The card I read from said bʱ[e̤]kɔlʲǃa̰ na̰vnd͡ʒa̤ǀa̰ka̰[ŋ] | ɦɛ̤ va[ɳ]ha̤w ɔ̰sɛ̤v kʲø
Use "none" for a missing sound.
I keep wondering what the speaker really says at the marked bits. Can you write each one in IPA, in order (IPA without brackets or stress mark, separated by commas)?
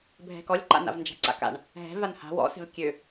ɛ̤, ɳ, n